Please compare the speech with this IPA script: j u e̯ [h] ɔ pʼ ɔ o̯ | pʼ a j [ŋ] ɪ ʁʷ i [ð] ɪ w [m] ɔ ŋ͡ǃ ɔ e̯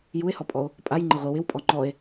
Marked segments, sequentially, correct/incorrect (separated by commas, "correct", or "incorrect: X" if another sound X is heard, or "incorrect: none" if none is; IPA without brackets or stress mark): correct, incorrect: ŋ͡ǃ, incorrect: w, incorrect: pʼ